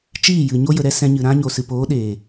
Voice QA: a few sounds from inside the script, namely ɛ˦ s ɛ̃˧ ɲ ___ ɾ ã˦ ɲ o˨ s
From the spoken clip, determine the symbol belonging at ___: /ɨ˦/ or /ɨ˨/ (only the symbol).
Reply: ɨ˨